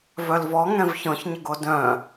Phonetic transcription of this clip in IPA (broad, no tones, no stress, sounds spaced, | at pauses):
v œ l v ɔ ŋ ɛ̃ v ç ɔ̃ ç ɲ ə ɡ o d œ̃